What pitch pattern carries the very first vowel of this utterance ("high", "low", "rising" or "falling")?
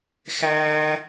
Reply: high